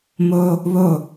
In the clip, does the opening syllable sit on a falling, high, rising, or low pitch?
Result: high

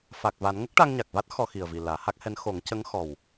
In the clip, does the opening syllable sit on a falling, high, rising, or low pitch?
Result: low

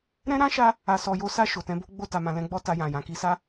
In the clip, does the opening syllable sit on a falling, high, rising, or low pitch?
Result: high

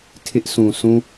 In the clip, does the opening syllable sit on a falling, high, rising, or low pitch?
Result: high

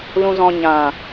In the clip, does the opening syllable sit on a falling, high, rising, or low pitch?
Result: low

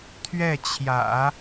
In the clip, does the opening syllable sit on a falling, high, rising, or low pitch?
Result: falling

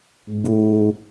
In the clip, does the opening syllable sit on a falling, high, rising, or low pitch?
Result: high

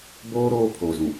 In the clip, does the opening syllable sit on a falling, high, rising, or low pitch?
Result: high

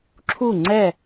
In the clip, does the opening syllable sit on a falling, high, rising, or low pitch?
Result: falling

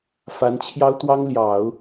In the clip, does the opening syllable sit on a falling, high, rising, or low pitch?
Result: rising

